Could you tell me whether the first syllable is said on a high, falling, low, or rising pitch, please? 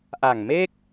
low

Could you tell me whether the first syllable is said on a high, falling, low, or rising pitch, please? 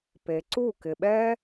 low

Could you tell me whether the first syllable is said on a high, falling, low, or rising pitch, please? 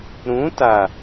rising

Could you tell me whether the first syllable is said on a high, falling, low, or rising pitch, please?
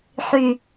high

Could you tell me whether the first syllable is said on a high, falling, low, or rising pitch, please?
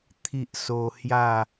high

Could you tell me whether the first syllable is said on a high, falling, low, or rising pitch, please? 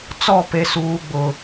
falling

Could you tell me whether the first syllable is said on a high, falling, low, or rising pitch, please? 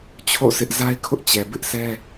falling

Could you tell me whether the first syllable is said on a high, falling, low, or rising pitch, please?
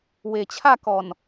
low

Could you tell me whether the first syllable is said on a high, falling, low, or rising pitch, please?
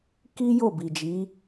high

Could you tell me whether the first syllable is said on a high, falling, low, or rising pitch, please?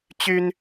high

